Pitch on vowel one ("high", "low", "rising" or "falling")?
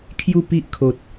falling